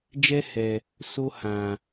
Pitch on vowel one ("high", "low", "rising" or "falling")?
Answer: high